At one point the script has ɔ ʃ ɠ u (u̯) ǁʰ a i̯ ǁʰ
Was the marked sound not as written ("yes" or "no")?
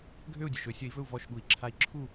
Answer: yes